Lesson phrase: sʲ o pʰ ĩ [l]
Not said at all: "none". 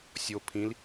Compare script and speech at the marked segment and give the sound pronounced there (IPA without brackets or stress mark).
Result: l